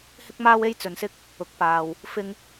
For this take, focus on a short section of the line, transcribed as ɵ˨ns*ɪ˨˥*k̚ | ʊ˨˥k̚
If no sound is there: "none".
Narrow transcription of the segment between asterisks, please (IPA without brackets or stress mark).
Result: ɪ˥